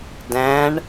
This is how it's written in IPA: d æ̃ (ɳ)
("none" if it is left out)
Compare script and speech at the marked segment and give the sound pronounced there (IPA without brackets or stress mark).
ɳ